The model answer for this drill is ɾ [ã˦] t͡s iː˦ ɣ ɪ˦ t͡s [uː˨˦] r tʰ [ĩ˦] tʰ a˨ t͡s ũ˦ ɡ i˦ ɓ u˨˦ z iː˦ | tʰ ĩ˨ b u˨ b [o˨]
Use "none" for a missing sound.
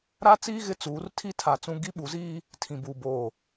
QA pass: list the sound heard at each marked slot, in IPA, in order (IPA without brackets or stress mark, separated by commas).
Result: a˦, uː˨˦, i˦, oː˨